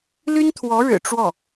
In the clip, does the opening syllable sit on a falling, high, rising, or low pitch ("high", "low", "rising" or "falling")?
high